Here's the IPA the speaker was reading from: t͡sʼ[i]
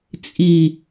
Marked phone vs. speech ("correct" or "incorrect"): correct